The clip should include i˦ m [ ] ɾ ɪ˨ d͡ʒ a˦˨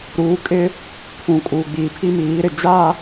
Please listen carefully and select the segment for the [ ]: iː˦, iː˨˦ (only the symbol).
iː˨˦